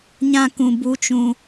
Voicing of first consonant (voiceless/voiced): voiced